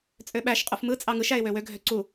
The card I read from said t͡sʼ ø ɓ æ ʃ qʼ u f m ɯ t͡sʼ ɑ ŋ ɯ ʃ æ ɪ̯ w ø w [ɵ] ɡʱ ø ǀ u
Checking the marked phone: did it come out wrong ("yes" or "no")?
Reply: yes